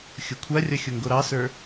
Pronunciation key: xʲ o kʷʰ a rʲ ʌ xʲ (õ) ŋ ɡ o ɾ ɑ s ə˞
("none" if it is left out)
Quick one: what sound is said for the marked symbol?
o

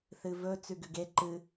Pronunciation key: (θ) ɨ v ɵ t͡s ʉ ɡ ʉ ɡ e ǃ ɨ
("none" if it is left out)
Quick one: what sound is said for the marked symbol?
θ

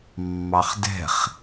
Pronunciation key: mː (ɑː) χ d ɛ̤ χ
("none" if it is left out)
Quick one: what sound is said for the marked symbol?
ɑ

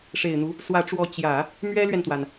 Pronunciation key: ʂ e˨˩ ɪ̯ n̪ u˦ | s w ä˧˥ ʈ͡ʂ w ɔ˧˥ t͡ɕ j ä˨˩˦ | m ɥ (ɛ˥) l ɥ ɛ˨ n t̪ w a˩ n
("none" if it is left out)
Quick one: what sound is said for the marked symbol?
ɛ˥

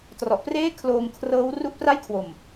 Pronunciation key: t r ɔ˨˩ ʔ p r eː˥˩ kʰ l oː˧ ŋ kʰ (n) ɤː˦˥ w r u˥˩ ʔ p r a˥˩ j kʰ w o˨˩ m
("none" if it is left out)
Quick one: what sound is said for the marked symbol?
r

